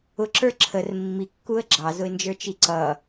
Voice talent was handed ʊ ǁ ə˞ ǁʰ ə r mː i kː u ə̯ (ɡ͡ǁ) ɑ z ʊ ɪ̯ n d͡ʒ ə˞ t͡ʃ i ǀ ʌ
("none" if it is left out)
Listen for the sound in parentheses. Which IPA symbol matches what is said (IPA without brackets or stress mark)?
ɡ͡ǁ